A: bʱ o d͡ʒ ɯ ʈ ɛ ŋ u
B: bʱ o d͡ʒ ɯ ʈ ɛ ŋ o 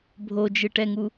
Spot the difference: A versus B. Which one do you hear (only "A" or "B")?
A